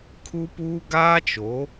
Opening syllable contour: high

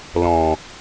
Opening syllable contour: low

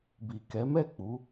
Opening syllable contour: low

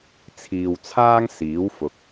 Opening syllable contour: low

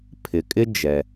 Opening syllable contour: low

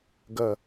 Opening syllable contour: falling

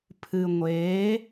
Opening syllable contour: low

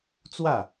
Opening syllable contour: falling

